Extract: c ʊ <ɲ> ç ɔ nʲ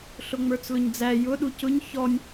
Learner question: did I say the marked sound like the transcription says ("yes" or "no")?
yes